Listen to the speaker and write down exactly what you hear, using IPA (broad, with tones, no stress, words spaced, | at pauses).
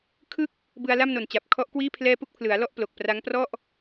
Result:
kʰɯ˥˩k̚ | bɯ˧a̯la˥˩mno˨˩nt͡ɕa˨˩p̚ kʰɔ˦˥ʔkwiː˥˩ pʰlɛː˥˩ pu˥˩k̚pʰlɯ˩˦a̯lɔ˥˩ʔ plo˨˩k̚pra˦˥ŋprɔ˥˩ʔ